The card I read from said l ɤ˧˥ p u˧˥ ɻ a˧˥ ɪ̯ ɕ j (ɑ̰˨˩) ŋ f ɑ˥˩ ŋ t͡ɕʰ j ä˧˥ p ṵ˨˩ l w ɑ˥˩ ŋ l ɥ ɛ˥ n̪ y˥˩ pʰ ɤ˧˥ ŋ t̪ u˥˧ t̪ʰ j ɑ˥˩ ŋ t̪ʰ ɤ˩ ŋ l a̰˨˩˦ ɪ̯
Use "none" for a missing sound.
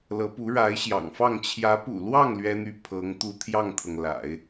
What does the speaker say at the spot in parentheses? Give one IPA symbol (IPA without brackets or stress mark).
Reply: ɑ̰˨˩